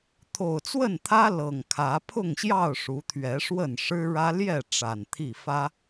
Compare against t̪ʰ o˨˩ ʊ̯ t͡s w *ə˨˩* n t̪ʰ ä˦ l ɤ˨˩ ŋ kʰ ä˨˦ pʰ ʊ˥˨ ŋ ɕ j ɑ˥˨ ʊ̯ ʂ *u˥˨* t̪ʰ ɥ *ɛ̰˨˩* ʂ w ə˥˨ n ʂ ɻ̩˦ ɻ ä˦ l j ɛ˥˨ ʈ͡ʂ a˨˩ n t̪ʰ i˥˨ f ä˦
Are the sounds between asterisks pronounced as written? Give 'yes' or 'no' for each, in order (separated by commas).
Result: no, no, no